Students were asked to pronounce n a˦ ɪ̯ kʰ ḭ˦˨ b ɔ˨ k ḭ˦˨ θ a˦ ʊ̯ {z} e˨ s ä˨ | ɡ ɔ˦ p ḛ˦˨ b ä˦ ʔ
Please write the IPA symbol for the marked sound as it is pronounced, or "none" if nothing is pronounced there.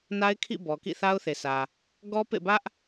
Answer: θ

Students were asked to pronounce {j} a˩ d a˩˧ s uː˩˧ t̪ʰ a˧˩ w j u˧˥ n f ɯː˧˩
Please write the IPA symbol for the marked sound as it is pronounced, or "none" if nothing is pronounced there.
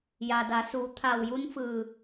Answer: j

